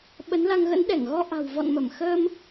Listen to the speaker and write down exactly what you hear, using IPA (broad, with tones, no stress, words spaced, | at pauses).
ɓə˨˦nla˧ŋ ɣə̰˧˥n ɗɛ˧˩ŋɣɔ˧ ʔa̤˨˩w vɔ̰˧˨nmə˧˩m xəː˧m